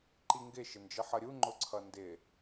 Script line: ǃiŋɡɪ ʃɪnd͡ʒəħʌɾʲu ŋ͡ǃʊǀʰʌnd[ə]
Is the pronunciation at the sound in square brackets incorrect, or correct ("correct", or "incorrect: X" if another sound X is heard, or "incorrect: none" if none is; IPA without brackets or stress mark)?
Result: incorrect: ɪ